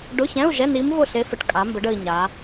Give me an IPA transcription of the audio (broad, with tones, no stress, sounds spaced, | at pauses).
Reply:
ɖ ʊ˧˥˧ ç ɛ̃˧˥˧ u̯ ʒ ɛ˧˥˧ n i˧˥ m v ʊ˥˩ ɬ e˧˥ f ə˩˧ ʈ kʼ a˩˧ m b ə˩˧ ɖ ə˨˩ i̯ ɲ a˩˧